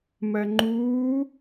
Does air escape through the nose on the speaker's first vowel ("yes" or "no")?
no